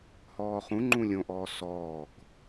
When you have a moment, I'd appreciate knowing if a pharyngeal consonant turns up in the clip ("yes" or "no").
no